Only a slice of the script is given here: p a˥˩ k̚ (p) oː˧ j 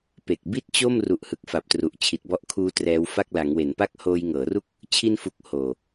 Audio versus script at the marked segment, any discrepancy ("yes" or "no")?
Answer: yes